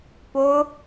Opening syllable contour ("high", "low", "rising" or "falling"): high